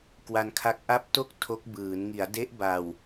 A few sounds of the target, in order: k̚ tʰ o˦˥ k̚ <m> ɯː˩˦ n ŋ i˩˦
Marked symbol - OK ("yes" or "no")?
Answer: no